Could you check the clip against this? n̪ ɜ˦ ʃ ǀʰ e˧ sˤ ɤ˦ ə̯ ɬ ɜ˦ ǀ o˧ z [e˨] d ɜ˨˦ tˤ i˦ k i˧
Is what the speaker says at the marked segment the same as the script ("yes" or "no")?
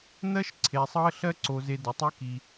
no